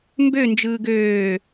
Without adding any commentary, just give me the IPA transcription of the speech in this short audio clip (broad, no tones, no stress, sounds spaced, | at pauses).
m b ø n d͡ʒ ɯː ɡ øː